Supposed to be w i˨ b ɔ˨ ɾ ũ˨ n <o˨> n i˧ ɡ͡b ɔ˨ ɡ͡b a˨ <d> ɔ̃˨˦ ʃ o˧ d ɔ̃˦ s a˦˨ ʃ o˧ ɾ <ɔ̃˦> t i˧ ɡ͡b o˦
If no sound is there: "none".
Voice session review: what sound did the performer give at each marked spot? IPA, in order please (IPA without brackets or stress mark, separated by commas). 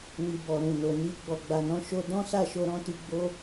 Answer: o˨, n, ɔ̃˦